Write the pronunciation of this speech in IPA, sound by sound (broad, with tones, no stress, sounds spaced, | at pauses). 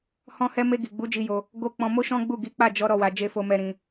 h ɔ̃˧ h ɛ˧ m e˧ ɡ i˨ ɡ͡b u˨˦ d͡ʒ i˧ j o˧ | ɡ o˧ k͡p ɔ̃˧ m o˦ ʃ ɔ̃˦ ɡ͡b u˦˨ ɡ i˨˦ k͡p a˦˨ d͡ʒ ɔ˨˦ ɾ ɔ˦˨ w a˧ d͡ʒ e˦ f o˦ m ɛ˦ ɾ ĩ˦